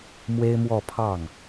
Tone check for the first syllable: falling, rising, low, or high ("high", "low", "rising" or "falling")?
high